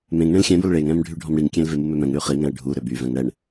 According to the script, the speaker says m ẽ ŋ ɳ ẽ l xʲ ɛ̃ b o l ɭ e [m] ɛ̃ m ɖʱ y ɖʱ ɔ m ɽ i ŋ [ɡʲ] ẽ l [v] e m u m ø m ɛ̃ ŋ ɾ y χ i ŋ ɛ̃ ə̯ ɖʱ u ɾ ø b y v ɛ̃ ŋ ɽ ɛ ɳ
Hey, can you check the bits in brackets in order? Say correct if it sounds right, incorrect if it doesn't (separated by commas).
incorrect, incorrect, correct